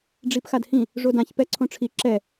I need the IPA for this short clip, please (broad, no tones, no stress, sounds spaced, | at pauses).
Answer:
ɖ͡ʐ i p x a d h ĩ | ʐ o d ã ç p ɛ ǀʰ õ ʈ͡ʂʰ i ǁ ɛ